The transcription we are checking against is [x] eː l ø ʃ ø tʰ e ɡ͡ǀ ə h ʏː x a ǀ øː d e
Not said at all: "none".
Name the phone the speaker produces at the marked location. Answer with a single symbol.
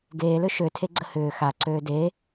ɡ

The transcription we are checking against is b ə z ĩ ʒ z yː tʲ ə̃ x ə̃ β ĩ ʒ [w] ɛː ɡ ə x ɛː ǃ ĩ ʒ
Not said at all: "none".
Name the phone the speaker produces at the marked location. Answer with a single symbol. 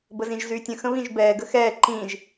b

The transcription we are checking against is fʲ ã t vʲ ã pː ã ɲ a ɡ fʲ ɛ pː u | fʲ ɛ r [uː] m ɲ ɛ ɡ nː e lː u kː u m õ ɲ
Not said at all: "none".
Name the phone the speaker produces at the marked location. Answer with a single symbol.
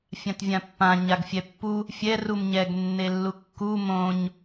u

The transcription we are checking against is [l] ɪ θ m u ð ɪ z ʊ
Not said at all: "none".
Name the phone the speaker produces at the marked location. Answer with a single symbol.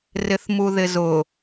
r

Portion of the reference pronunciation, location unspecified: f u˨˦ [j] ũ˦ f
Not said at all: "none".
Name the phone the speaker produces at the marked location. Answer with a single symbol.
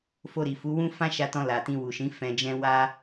w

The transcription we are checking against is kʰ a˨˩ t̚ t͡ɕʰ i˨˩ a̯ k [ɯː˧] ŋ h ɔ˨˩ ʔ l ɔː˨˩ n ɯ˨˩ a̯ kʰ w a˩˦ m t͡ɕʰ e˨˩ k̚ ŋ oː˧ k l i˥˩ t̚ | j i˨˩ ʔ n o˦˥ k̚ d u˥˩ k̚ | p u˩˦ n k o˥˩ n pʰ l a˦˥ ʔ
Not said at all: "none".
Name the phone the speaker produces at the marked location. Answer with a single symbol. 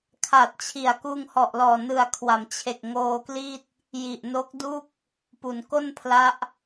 uː˧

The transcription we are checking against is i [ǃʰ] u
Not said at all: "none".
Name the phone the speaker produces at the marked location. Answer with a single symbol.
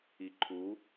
ǃʰ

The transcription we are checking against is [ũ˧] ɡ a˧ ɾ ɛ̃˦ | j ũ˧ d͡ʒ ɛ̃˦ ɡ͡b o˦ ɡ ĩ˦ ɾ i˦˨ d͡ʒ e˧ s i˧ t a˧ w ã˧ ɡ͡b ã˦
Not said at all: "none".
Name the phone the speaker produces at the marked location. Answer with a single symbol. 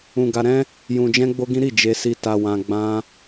ũ˧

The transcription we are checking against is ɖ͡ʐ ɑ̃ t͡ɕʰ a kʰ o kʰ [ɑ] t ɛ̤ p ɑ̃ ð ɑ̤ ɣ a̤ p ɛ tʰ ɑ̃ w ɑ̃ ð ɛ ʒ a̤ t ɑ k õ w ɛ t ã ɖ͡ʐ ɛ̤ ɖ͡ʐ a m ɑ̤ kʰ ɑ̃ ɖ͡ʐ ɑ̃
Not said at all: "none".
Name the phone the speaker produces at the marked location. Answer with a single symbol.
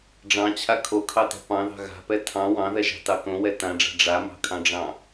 ɑ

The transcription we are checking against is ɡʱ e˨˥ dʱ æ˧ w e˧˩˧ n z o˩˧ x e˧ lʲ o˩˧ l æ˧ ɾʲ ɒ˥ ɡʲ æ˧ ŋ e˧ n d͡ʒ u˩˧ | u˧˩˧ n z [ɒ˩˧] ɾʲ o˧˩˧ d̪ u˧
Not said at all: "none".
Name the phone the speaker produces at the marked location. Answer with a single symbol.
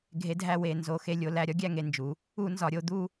ɒ˩˧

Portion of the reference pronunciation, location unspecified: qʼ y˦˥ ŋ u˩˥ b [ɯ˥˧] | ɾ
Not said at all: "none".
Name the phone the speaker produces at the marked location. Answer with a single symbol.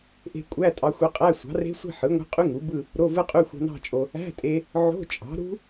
ɯ˥˧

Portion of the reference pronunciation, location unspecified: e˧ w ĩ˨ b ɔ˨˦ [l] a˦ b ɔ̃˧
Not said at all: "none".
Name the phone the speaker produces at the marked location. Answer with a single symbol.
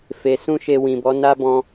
n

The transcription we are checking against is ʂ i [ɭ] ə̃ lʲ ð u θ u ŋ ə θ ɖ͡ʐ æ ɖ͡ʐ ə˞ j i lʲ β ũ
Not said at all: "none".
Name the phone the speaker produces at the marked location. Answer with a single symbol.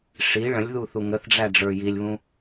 ɭ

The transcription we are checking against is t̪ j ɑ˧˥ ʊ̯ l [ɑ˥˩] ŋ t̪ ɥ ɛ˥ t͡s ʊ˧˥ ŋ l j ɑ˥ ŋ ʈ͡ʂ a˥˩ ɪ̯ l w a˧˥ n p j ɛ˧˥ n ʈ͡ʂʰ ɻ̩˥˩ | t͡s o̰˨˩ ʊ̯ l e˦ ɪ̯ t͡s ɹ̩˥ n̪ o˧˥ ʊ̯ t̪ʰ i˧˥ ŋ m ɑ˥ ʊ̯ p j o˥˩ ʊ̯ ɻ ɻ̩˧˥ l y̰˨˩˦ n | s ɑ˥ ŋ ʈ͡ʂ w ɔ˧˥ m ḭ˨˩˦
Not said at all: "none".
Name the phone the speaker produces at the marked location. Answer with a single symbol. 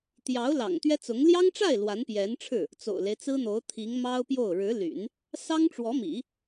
ɑ̰˨˩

